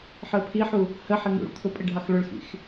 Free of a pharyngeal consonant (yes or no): no